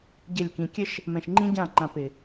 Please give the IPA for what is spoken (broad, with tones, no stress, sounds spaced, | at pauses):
ɟ ɘ˦˨ lʲ k ĩ˧ kʲ ɘ˦ ʃ | m ɛ̃˨ ʃ ŋ͡ǃ ĩ˦ ɟ ã˦˨ ŋ͡ǃ ã˧ p ɪ˨